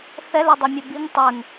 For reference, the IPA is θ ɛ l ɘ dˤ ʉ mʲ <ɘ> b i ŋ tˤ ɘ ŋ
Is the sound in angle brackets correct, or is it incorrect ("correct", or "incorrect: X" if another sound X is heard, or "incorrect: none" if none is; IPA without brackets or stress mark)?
correct